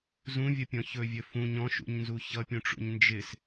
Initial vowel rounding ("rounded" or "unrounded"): rounded